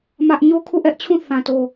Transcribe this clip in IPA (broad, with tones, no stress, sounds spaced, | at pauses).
m ä˦ ʔ ɲ o˦ kʰ u˦˨ ʔ ɛ˦ ʔ t͡ɕʰ ũ˦˨ θ ã˨ t o˨